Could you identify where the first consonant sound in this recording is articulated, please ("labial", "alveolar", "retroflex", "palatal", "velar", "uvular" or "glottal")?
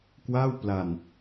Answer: velar